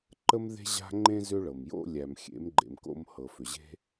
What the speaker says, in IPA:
ǃ ə˦ m ð e̤˦ ʑ a̤˦ ŋ͡ǃ ẽ˦ z ʏ˦ ɭ ɤ˨ m j o̰˦ lʲ æ˨ m xʲ ḛ˨˦ m ɡ͡ǃ ḛ˨ m k o̰˧ m h ɤ˨ f ʏ˨ ʑ e̤˦

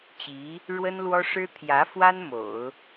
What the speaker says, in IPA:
t͡ɕ i˧˥ | ɻ w ə˥ n l w ɔ˥ ʂ ɻ̩˥ t̪ʰ j ä˧˥ f w a˥ n m o̰˨˩˦ ʊ̯

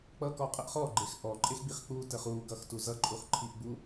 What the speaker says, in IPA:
k͡p ʌ k ɔ qʼ ə ʔ χ ɔ ɡ͡ǃ e x ʔ ɔ ǃʼ e x ɡ͡b i χ k͡p u t ə χ u ɡ ʌ x t u z ʌ ǃʼ u χ ǃʰ i ʔ ɡ͡b u

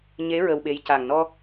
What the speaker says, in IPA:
ɲ e˧˥ ɹ ə˧ w ɓ e˧˥ j c a˨˩ ŋ n ɔ˧

